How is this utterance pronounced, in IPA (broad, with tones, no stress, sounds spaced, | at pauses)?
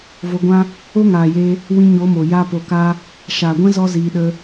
v o˧ ɡʷ ã˦ | o˦ ŋ aː˨ j e˧ | w ĩ˧ ɲ o˨˦ m o˨ j a˦ p o˧ k a˦ | ʃ aː˨ ɡʷ ɛ̃˦ z ɔ˦ z iː˧ ɗ ə˧